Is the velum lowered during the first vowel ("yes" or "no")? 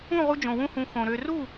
yes